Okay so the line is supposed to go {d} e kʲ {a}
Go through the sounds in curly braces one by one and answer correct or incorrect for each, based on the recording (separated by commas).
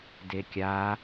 correct, correct